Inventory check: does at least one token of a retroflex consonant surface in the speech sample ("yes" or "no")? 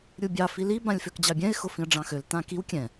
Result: yes